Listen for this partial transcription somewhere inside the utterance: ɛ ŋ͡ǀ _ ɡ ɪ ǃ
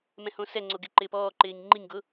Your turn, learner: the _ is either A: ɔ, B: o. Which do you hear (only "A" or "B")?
B